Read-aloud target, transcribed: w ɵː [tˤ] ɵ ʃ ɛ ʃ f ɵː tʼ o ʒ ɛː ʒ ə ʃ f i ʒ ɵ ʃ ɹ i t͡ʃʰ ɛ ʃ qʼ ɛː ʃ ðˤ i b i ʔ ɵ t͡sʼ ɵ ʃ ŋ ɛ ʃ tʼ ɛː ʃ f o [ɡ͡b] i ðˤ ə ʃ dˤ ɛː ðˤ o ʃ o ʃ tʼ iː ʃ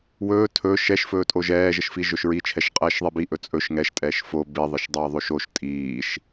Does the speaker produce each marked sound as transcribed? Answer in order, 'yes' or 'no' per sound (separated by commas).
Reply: no, no